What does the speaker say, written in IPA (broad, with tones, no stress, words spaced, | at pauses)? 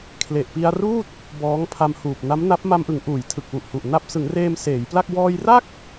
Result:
kʰle˨˩ʔpi˧a̯ ruː˥˩t̚ | bɔː˦˥ŋpʰa˧mhuː˨˩p̚ na˦˥mna˦˥p̚ ma˧mʔɯ˩˦ŋ ʔuː˩˦jtʰɯ˨˩k̚ wu˨˩ʔhu˨˩ʔ na˦˥p̚ sɯ˩˦ŋreː˧m seː˩˦jpla˥˩k̚ wɔː˧jra˥˩k̚